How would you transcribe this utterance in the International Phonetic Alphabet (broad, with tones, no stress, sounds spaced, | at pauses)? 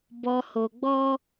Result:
b ɔ˧ h o˧ ɡ͡b ɔ˦